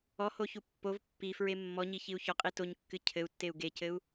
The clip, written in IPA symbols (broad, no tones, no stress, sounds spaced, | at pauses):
ɔ h o ç u pː o v pː i f ɹ e mː ɔ ɲ i ç i u̯ ç ɔ qʼ i t o ɲ kː ɨ cʰ ɘ u̯ tː e u̯ ɡ e c ɘ u̯